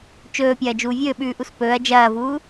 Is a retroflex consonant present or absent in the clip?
absent